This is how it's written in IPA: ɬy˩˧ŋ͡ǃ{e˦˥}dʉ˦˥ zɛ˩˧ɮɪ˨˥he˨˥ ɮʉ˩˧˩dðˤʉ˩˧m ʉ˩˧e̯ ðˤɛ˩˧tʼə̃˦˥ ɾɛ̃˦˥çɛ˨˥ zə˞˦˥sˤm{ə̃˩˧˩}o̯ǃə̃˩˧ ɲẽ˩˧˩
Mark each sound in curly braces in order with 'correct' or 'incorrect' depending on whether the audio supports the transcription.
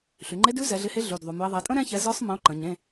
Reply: correct, incorrect: ə̃˨˥

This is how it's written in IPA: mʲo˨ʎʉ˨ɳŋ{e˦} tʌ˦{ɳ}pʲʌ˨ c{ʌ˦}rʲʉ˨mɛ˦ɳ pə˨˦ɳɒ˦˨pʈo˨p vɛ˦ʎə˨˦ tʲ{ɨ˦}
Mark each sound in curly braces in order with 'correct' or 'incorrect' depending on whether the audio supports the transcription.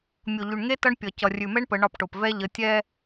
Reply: correct, correct, incorrect: ʌ˨, incorrect: ɛ˦

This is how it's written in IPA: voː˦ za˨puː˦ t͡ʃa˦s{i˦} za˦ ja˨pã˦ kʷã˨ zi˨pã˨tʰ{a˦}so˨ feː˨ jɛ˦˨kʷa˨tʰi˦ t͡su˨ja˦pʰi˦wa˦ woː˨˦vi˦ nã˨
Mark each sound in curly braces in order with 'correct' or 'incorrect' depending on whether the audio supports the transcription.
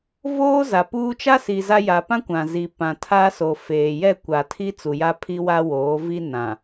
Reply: incorrect: i˨, correct

